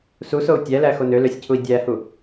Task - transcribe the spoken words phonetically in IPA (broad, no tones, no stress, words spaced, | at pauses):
susou̯ tʲælæxo nøløsʲcʰui̯ dʲæhu